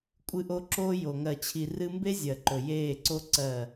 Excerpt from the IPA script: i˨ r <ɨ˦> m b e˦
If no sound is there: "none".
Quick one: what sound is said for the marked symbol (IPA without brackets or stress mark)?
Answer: ɨ˦